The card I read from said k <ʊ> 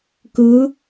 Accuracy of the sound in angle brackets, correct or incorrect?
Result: incorrect